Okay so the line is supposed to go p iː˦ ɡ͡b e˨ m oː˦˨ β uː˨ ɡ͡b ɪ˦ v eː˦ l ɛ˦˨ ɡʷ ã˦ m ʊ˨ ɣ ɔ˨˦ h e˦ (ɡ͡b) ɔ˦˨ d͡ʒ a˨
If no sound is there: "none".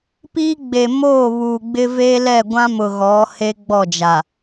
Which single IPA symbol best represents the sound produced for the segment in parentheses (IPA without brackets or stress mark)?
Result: ɡ͡b